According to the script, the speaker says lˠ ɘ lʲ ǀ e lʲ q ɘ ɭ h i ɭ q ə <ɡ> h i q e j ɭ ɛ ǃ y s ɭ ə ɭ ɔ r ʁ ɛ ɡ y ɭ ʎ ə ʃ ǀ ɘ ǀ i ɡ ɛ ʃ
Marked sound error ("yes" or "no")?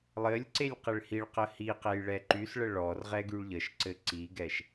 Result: yes